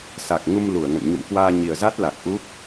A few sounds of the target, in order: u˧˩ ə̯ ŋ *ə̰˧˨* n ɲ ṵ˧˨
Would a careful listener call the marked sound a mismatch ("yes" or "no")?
no